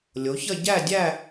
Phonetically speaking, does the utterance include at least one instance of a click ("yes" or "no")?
no